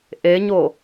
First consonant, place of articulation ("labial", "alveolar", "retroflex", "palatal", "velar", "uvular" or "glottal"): glottal